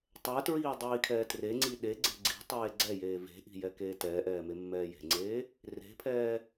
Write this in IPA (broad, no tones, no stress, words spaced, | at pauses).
tˤɛtɹiː dˤiːkʰɛːtreŋ͡ǀi ɗeɡ͡ǀe̤ ɡ͡ǀi̤ tˤeːɡ͡ǀɛjeː ve̤ʔi̤ jɛkeːtɛːʔɛː memːɛːje̤ŋ͡ǀeː | re̤pʰɛː